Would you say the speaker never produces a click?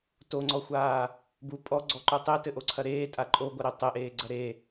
no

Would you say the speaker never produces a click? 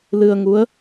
yes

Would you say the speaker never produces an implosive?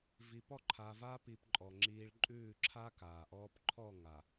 yes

